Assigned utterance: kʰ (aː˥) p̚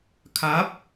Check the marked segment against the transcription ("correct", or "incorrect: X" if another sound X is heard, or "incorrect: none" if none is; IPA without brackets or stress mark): incorrect: aː˨˥